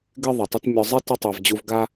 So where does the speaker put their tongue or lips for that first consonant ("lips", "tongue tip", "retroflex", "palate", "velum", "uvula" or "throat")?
velum